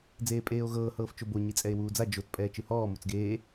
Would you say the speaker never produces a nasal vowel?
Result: yes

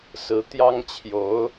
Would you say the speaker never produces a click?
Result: yes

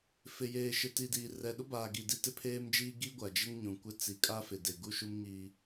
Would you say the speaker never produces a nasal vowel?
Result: no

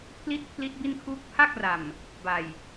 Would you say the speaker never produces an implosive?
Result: yes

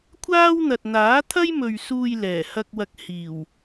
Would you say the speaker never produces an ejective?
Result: yes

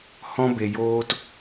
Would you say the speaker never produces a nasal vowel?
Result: no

